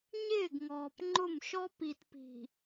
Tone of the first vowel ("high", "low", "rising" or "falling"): falling